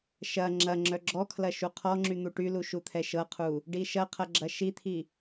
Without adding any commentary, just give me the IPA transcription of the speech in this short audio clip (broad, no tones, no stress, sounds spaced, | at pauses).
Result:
ʃ ɐ ŋ͡ǁ ɐ ŋ͡ǁ œ ɡ͡ǁ ɔ kʰ l ɐ ʃ u qʰ ɔ ŋ͡ǁ y n̪ u ʈ y l u ʃ u t̪ʰ ɛ ʃ ɤ qʰ u | ɖ i ʃ ɐ qʰ ɐ ɡ͡ǁ ɐ ʃ i t̪ʰ i